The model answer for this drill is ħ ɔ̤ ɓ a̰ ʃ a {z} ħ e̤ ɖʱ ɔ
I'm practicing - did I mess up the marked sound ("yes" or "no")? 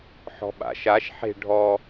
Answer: yes